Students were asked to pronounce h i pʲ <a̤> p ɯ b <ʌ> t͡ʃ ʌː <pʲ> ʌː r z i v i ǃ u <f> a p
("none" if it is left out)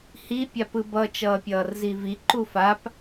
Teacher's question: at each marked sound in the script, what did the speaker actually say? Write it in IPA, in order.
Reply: a, ʌ, pʲ, f

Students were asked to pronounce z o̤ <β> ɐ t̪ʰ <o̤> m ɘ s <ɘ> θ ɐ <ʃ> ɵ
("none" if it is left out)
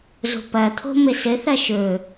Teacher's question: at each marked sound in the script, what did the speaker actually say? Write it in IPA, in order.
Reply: p, o̤, ɘ, ʃ

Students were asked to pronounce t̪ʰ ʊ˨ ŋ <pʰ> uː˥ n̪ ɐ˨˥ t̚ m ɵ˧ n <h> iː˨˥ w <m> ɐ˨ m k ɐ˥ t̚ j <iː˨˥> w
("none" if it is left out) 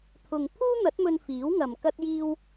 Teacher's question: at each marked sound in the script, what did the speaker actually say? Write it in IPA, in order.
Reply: pʰ, f, ŋ, iː˥

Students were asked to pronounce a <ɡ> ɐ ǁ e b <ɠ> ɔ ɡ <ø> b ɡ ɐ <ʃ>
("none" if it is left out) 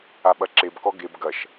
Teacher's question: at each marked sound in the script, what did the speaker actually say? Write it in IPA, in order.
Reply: ɓ, k, e, ʃ

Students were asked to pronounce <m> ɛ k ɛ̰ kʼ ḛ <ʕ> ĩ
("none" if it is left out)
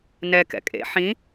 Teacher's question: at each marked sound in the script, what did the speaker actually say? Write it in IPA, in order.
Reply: n, ħ

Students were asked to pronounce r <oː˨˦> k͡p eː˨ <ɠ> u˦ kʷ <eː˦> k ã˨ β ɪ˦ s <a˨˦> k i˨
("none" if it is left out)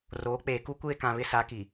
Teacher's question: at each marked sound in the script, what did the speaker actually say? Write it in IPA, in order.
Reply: oː˨˦, k, eː˦, a˨˦

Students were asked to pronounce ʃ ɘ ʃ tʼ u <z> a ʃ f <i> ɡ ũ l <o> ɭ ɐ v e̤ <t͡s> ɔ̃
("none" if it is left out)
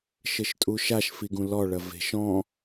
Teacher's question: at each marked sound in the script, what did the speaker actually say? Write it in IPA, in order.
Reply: ʃ, i, ɔ, ʃ

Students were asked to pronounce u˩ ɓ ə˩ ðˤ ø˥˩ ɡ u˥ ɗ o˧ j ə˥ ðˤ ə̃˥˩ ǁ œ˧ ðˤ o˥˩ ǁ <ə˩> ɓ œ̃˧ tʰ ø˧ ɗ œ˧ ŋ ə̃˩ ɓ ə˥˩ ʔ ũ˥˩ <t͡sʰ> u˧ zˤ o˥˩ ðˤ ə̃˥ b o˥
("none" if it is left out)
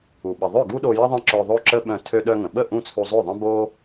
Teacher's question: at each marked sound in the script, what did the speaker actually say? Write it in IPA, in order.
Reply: ə˥, t͡sʰ

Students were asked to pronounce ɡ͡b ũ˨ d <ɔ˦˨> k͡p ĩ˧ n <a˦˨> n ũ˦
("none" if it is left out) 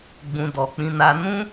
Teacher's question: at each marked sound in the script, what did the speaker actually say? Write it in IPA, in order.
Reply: ɔ˨, a˧

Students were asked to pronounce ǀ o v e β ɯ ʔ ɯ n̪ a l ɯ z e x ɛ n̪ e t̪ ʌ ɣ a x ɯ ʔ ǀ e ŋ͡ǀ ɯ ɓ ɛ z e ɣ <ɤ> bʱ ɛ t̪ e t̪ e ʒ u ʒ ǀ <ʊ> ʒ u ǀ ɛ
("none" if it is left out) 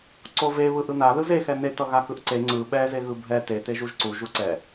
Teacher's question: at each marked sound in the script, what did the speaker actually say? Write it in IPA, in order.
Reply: ɯ, u

